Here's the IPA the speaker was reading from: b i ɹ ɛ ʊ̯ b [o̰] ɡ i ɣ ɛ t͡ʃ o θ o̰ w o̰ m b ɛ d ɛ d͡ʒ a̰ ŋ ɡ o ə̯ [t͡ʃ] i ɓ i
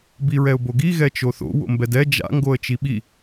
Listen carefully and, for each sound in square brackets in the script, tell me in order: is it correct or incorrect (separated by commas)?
incorrect, correct